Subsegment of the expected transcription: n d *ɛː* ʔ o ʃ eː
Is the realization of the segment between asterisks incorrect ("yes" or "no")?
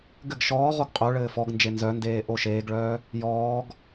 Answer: yes